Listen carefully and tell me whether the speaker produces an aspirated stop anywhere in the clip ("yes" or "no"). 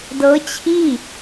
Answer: yes